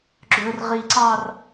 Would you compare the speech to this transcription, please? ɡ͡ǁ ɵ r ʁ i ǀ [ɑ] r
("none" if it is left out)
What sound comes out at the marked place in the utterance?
ɑ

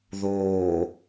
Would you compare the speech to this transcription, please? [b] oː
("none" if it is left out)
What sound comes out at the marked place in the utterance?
ð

